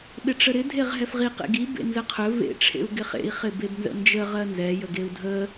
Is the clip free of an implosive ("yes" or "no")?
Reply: no